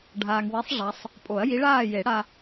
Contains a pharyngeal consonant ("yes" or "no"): no